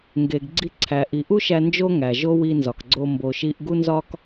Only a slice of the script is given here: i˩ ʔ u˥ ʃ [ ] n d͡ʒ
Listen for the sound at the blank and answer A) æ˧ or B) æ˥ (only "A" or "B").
A